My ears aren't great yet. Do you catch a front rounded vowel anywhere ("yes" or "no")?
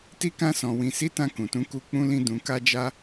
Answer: no